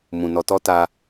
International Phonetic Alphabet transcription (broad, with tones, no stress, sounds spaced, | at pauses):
m ũ˨ n ɔ˧ t ɔ˦ t a˧